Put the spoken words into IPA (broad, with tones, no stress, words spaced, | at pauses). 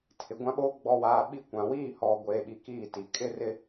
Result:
tʰɪ˨ɡʷã˦ɓoː˦ ɡ͡bɔ˨waː˨ ɓi˦kʷã˨ wiː˦˨hɔ˨ ɡʷeː˨ɓi˨ kiː˦˨ti˨ kʼɪ˦rɪ˦